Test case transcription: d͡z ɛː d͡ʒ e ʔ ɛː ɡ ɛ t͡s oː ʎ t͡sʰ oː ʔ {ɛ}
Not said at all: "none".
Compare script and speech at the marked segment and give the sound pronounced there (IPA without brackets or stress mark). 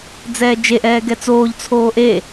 e